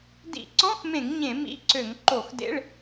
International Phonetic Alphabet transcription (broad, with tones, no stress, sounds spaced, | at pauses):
d ḭ˧˩˧ ǀ ɔ̃˧˥˧ x m ẽ˧˩˧ ŋ ɲ ẽ˧˩˧ m ḭ˧˥˧ ǀ ø˧˩˧ ŋ ǃ o˧˩˧ x d ḛ˧˥˧ ɭ